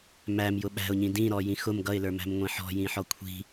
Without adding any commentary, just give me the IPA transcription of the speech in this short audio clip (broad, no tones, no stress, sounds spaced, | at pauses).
m æ m j ʊ ɓ æ̤ ʊ̯ ɲ ĩ d ĩ ɾ ɔ j ĩ x ʊ m ɡ ʌ ɪ̯ l ə˞ m æ̤ m ŋʷ ĩ ħ ɔ̤ j ĩ ħ ɔ kʷʰ i̤